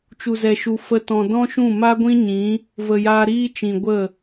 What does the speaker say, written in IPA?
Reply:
t͡ʃ u˨ z ɛ˨ ʃ u˨ f ə˧ t ɔ̃˨ d ɔ̃˦ ʃ ũ˦˨ m a˦ ɡʷ ĩ˦ ɲ ĩ˨˦ | v ə˨ j aː˧ ɾ iː˦ t͡ʃ ĩ˨ ɡʷ ə˦˨

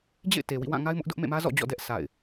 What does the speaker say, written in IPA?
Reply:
d͡ʑ ḛ˦˨ ɪ̯ t e˨ w ḭ˦˨ w ã˦˨ ŋ a˦ ɪ̯ m ʊ˦ ʔ d ʊ˦ ʔ m ḛ˦˨ m ä˦ z ɔ̰˦˨ d͡ʑ ɔ̰˦˨ d ɛ˦ ʔ sʰ a̰˦˨ ɪ̯

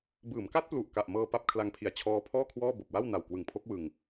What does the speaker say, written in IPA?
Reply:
b ɯː˩˦ m k a˦˥ t̚ p l u˨˩ ʔ k a˨˩ ʔ m ɤː˧ p a˥˩ p̚ kʰ l a˧ ŋ pʰ i˨˩ a̯ t͡ɕʰ ɔː˦˥ pʰ ɔː˥˩ kʰ w ɔː˥˩ b o˨˩ k̚ w a˥˩ w n a˨˩ w k w ɯ˨˩ ŋ pʰ o˦˥ k̚ w ɯ˧ ŋ

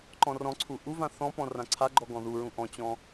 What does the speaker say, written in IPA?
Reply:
ǃ ɔ̃ r ɔ̃ ǀʰ u ʔ u v ã θ ɔ̃ p ɔ̃ r ã ǀʰ a ɡ͡ǃ ɔ ɡ ɔ̃ ð u ɹ ũ ʔ ɔ̃ t͡ɕ ɔ̃

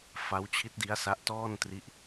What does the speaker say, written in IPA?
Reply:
f a˦˥ w t͡ɕʰ i˦˥ t̚ d i˦˥ a̯ s a˦˥ ʔ t ɔː˥˩ n t r i˦˥ ʔ

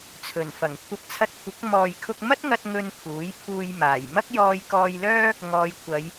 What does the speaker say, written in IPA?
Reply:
t͡sʰ ɵ˨˩ n f ɐ˨˩ ŋ kʷʰ ɐ˧ p̚ t͡sʰ ɐ˧ t̚ kʷʰ ɪ˨˥ k̚ m ɔː˨ j kʰ ʊ˧ k̚ m ɐ˥ t̚ ŋ ɐ˥ t̚ ŋ ɵ˧ n pʰ uː˨˥ j pʰ uː˧ j m aː˨˩ j m ɐ˥ k̚ j ɔː˧ j k ɔː˧ j l œː˥ | ŋ ɔː˨˧ j kʷʰ ɐ˨˧ j

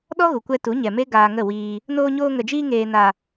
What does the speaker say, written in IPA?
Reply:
ɗ ɔ˦ ɣ u˨ kʷ ɛ˧ t u˨˦ ɲ ɛ˨ m e˦ ɡ aː˧ ŋ ə˦˨ w iː˧ | n oː˧ ɲ oː˧ ŋ ə˨ d͡ʒ iː˧ ŋ eː˨ n a˨

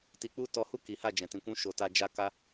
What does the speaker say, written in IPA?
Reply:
t i˧ k͡p u˦ t ɔ˧ h u˦ k i˨˦ h a˦˨ d͡ʒ ɛ̃˨ t ĩ˨ kʷ ũ˧ ʃ o˨ t a˧ d͡ʒ a˧ k a˧

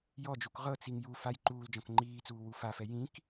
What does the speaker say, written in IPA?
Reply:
j ɔ d͡ʒ u k ʁ ɤ t͡s i ŋ j u f a j ǃ uː l d͡ʒ ɔ̃ k ŋ͡ǃ iː t͡s uː w u f a f ɛ j ĩ k

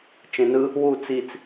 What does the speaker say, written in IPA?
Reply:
t͡ʃ ẽ n ɯ | w u t͡s i t͡s

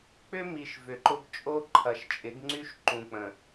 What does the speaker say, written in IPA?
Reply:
k͡p ʏ˦ m i˨ ʃ v ʏ˨ ǃ ʊ˦ ɡ t͡ʃʼ o˦ ǃʰ ɐ˨ ʃ t͡ʃʼ ɪ˨˦ ɡ ŋ͡ǀ y˦ ʃ ǃ ũ˨ k͡p ə̃˨

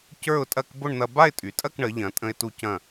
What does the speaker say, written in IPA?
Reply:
c ə˞˥˧ ʊ̯ tʼ ɐ˥˧ k b ʊ˥˧ ɳ n̪ ɐ˧ b a˥˧ ɪ̯ tʼ y˩˧ tʼ ɐ˥˧ k ɳ ə˩˧ ʎ ɐ̃˩˧ tʼ ə̃˧ ɪ̯ t u˧ c ɐ̃˧˩

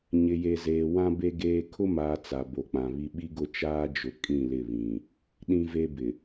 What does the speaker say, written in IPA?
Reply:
ɲ ɪ˨ j e˨ z eː˨ w ã˦ b e˦ ɡ eː˦ kʰ ʊ˦ m aː˨ t͡s a˨ b o˨ k͡p ã˨ β i˦ ɓ i˦ ɡ ʊ˦˨ t͡ʃ aː˦ d͡ʒ ʊ˨ kʼ ĩ˦˨ l ɪ˦˨ β ĩ˨ | ɗ ĩ˦ v e˦ b ɪ˨

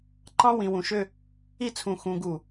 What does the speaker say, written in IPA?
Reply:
ǃ ɑ̃˥ w ĩ˩˧ w ũ˩˧ ʃ ø˥˧ | i˥˧ t͡sʰ ũ˧˩ x ũ˧ ɡ u˧˩

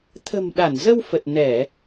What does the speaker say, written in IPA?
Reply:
t̪ʰ ə̤˨˩ m ɗ a˧˩ n z ə˧ w f ə˨˩ t̚ n ɛ˧˩˨

